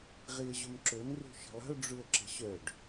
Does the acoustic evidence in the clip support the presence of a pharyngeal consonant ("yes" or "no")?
no